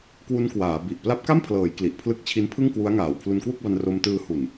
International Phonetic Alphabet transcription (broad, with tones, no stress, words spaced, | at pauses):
kwu˦˥n kwaː˩˦ bi˨˩ʔ pla˦˥p̚ka˥˩mpʰlɤː˩˦j kli˨˩ʔpʰlɯ˦˥k̚t͡ɕʰi˦˥n pʰɯ˥˩ŋkwu˦˥a̯ŋaː˨˩w pʰlu˧nkwu˥˩k̚ba˧n ro˧mtɯː˧hu˨˩n